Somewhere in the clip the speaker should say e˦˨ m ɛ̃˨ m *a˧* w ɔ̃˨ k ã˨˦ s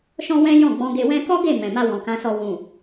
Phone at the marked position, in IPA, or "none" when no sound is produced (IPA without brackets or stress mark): a˧